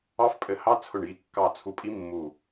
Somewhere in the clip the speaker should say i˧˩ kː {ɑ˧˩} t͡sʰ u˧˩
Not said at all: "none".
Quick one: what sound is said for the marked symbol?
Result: ɑ˧˩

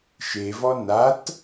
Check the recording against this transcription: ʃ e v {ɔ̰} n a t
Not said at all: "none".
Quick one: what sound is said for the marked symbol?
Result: ɔ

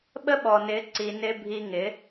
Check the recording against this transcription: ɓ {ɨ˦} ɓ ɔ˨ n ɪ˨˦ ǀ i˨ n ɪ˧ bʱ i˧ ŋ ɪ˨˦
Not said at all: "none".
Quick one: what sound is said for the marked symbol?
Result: ə˦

